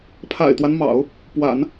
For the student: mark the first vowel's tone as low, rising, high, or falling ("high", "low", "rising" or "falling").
low